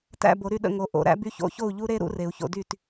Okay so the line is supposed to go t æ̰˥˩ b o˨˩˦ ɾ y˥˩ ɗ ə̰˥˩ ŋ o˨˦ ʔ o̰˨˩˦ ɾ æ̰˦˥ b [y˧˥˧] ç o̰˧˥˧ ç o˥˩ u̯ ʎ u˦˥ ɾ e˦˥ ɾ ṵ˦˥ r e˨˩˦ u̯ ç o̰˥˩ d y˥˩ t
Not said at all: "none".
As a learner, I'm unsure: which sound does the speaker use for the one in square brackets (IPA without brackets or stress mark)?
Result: y˧˥˧